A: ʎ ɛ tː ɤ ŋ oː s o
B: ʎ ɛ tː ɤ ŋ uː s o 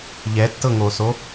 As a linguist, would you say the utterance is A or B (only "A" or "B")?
A